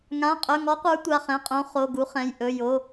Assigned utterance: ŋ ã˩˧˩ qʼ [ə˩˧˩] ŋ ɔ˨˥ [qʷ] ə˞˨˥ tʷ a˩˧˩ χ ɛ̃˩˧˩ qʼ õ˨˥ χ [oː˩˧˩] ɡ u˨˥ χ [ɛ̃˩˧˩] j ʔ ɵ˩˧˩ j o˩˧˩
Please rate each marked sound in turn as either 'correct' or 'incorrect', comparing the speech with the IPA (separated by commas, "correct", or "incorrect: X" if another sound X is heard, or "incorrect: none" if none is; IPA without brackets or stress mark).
incorrect: ɵ˩˧˩, correct, incorrect: o˩˧˩, correct